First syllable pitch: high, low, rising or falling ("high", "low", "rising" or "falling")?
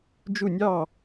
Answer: falling